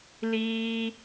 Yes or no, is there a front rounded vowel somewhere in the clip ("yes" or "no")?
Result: no